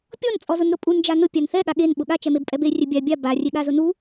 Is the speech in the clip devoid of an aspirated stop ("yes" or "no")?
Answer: yes